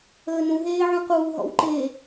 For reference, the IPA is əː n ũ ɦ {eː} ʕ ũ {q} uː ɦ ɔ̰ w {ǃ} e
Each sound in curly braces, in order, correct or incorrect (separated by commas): correct, correct, correct